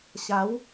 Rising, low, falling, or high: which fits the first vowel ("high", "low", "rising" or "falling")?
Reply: rising